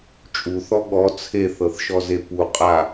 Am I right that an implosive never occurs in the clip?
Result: no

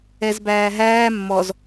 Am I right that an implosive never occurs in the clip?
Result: yes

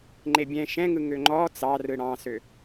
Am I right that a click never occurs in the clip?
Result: no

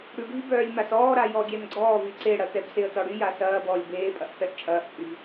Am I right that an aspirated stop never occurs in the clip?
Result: yes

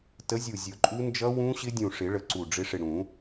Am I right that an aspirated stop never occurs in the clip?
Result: yes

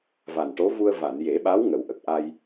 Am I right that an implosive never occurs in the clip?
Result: no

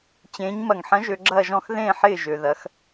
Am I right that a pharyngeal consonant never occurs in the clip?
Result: no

